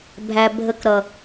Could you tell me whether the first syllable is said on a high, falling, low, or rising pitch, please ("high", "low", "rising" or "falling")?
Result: low